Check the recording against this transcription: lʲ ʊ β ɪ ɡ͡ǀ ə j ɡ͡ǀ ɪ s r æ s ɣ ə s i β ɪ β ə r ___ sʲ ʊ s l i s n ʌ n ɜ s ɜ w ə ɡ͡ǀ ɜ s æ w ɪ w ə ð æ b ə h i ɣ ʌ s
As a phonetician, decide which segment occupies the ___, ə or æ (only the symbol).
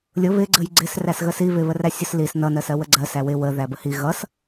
æ